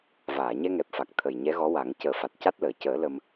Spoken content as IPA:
v aː˨˩˨ ɲ ɛ˧ ŋ ɛ˨˩ p̚ f a˨˩ k̚ t̪ʰ ə˨˩ j ɲ ɛ˧˥ ɣ ɔ˧˥ w a˨˩˦ ŋ c əː˨˩˦ f a˨˩ t̚ c a˦˥ t̚ l əː˨˩˨ c əː˨˩˦ l ə˧ m

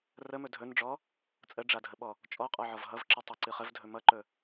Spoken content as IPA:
r ə m ɵ dʱ ɵ n ɖ͡ʐ ɔ | t͡sʼ ə ɖ͡ʐ a dʱ ə ɓ ɔ | t͡ʃʼ ɔ qʼ ɔ ʕ ɔ v ɦ ʌ v ǁ ɨ tˤ ɨ ǀ ɨ χ ə v dʱ ɵ m ʌ ǃ ɵ

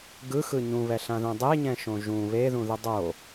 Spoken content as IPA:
ɡ ɯ x ɯ ɲ ũ β ɛ ɬ ã ð ũ dˤ e ɲ ɛ̃ ʃ õ ʒ ũ β e ð ũ ð ɯ dˤ o

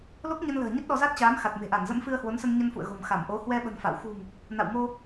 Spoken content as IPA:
l o˦˥ k̚ ɲ ə˧ n l ə̤ː˨˩ ɲ ə˦˥ t̚ ɗ ɔ˧ z a˦˥ t̚ t͡ɕ aː˨˦ m x a˨˩ t̚ m e̤˨˩ ʔ a˧˩ n z ə̰˧˥ m f ɨ˧ ə̯ h w o˨˦ n s ə˧ n ɲ ə˧ n f ṵ˧˨ ə̯ ɣ o̤˨˩ m x a˧˩ m ʔ o˨˦ h w ɛ˧ ɓ ə̤˨˩ n f a̰˧˨ w x ṳ˨˩ ŋ | n a̰˧˨ w m o˧

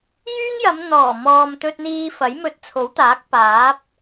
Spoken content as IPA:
j yː˥ ŋ j ɐ˨˧ m n̪ ɔː˨˩ m ɔː˨ m t̪ ɵ˧ t̚ n̪ iː˧ f ɐ˨˥ j m ɵ˧ t̚ t͡sʰ o˨˥ w t̪ aː˨˥ k̚ p aː˨˥ p̚

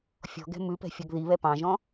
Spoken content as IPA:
fʲ ɔ̤ ɡ ɛ̤ m ʉ p ɛ̤ fʲ ɔ ɡ ð i β ɛ p ɑ̃ ʒ ɔ̃

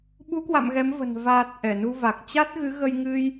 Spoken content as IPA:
ɓ u˨˦ k w a̰˧˨ m ɣ ɛ˨˦ m v ə̤˨˩ n v aː˨˩ t̚ ʔ ɛ˧˩ n u˧ v a˨˩ k̚ t͡ɕ a˦˥ t̚ ɣ ɨ˨˦ ɣ ə˧ j ŋ ɨ˧ j

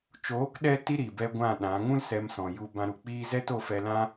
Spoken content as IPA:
t͡ʃ oː˨˦ k ɗ ɛ˧ t i˧ ɾ i˨ b ɛ˧ ɡʷ ã˦˨ ɗ ã˨˦ ŋ ũ˦ l s ɛ˧ m s ɔ̃˨ j u˧ b ã˧ ɾ u˨ k͡p iː˦ z ɛ˦ t o˧ f ɛ˧ l ã˦

